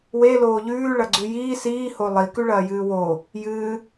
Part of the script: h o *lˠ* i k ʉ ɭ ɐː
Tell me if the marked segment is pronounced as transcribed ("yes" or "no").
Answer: yes